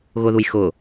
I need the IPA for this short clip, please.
ɣ ʊ ð u j x ʊ

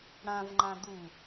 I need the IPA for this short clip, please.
ɽ ã v ŋ͡ǃ ã d̪ u

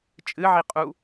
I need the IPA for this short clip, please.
t͡ʃʼ ɨ ʕ i qʼ u

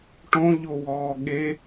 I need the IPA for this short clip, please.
ʈ õ ʎ o w ɔː ɠ e

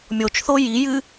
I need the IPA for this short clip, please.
mʲ o t͡ʃ θ o j i j ɨ

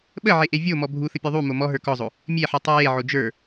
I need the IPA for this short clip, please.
ɓ ə ʕ e ʔ e vʲ o m ɔ bʱ u θ ə pʲ o ðˤ u m o m ɔ ɦ ə˞ k ɔ zˤ o | mʲ e ħ u tˤ ə˞ j e ʕ o d͡ʒ ə˞

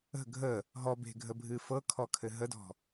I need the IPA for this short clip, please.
ə̤ ɡʱ ə | ɦ ɔ b e̤ ɡʱ ə bʱ ɨ f ɤ kʰ ɔ kʰ ɘ ɦ ə d ɔ̤

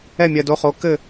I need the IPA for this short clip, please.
ɛ˦˨ mʲ ɜ˨ d o˨˦ χ o˨˦ k ɘ˦˨

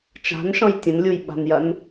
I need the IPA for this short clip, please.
t͡ʃ a̤ n ʃ ɔ̃ j tʲ ə̃ n lʲ u j ɓ a̤ n j ɐ n

